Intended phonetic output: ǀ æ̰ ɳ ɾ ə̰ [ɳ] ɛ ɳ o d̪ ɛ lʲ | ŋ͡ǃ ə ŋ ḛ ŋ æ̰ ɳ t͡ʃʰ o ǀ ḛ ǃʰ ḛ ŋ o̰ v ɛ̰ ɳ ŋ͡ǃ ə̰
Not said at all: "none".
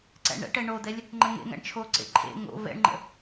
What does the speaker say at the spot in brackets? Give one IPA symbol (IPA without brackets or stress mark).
ʈ